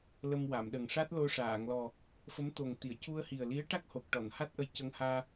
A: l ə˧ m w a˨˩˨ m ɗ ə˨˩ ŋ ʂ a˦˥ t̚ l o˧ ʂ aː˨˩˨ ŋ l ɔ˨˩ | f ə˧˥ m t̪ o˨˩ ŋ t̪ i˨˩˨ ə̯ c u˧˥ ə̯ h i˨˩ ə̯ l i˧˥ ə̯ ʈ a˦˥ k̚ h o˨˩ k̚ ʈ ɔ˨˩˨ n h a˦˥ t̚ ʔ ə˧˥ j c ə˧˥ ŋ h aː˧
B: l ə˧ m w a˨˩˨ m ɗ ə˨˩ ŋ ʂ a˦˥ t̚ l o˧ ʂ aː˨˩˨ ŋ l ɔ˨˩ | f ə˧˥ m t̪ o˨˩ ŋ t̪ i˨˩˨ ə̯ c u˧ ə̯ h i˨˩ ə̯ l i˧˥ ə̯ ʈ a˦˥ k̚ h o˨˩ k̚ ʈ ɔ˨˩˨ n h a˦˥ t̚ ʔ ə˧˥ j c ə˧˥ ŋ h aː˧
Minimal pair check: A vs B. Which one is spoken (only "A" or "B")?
B